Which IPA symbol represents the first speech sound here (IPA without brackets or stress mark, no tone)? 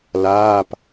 l